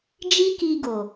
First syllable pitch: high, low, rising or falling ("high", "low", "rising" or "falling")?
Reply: high